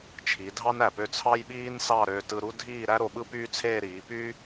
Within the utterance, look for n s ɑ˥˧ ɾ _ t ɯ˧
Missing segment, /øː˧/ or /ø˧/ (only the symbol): øː˧